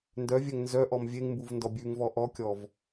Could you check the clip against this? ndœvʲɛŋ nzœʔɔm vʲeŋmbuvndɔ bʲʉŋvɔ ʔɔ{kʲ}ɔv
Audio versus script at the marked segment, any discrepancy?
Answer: no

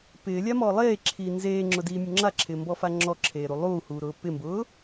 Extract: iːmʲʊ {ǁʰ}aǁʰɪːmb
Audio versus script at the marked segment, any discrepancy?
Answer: yes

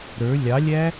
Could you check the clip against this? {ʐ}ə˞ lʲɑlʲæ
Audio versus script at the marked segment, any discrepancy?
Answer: yes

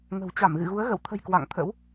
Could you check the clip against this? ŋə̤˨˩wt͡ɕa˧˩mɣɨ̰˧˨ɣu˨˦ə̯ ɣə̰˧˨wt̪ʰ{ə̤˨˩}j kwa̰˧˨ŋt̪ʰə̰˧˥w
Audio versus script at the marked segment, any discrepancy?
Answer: no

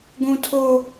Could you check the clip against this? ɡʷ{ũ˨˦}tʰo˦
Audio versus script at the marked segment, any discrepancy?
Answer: yes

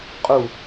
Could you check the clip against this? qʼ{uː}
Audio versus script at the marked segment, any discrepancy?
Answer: yes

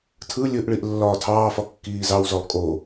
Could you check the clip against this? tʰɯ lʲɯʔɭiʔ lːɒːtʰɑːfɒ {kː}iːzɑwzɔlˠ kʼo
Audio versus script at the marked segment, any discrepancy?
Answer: no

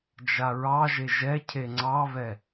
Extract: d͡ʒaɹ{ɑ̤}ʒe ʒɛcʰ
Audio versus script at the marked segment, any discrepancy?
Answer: yes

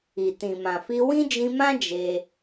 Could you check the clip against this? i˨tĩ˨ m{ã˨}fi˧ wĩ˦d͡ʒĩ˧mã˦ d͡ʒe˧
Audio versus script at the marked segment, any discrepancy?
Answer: no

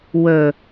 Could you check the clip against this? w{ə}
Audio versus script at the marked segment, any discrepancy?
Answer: no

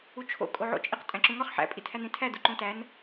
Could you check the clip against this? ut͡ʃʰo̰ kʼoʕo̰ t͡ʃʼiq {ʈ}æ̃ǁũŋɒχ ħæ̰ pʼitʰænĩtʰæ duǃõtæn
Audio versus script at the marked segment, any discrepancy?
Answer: yes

